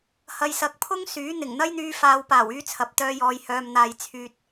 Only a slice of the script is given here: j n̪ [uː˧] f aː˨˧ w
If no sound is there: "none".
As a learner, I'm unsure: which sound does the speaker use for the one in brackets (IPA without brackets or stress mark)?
yː˧